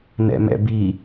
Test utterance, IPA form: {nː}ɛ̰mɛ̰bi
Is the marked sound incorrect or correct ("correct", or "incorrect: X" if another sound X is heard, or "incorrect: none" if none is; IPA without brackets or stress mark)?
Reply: incorrect: n